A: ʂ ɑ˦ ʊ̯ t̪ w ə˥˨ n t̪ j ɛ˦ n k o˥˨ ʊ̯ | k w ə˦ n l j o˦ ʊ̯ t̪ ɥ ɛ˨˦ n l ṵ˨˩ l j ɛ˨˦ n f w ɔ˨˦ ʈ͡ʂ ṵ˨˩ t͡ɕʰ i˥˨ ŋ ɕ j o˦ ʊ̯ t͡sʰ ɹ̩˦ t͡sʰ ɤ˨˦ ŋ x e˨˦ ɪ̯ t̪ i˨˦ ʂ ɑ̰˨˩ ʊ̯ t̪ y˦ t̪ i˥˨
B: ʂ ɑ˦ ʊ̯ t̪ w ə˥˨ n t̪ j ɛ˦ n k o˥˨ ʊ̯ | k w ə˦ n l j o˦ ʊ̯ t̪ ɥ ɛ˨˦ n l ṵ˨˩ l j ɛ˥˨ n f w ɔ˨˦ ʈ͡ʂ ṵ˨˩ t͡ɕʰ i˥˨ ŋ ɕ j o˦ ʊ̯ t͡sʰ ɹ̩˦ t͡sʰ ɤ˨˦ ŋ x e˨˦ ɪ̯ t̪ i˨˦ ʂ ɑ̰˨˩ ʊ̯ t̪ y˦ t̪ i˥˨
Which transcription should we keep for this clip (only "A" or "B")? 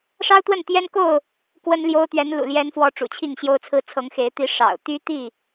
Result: A